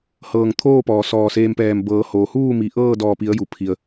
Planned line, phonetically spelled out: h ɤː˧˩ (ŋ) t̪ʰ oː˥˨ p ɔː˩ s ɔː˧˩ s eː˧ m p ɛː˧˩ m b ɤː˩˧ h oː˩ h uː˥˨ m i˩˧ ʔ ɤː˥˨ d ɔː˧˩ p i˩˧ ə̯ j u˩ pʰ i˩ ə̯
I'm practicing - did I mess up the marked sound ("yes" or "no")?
no